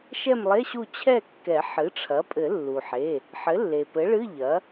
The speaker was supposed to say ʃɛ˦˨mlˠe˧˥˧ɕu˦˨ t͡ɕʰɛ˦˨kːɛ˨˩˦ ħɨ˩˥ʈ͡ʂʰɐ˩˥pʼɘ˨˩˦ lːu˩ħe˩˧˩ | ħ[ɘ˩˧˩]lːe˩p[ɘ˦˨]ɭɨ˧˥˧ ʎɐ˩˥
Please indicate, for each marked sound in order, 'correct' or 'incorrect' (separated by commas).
incorrect, incorrect